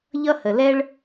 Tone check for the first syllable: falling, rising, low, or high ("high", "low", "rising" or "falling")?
high